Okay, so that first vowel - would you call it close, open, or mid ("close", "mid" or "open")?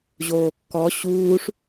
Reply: mid